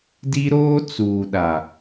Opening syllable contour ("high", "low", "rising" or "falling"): high